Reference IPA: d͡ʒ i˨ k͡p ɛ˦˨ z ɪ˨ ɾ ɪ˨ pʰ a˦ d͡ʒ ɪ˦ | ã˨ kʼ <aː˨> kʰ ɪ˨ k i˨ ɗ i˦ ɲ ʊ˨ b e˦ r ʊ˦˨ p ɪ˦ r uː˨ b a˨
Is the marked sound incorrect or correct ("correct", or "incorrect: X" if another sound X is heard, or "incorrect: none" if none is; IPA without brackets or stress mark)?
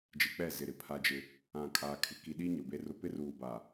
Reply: correct